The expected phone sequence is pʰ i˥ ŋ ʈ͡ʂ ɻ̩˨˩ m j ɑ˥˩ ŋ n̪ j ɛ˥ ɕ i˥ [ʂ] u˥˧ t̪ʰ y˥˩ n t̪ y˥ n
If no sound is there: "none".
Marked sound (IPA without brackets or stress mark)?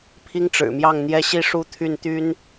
ʂ